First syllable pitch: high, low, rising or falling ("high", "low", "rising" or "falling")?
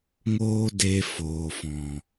high